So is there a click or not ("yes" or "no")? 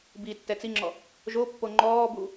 yes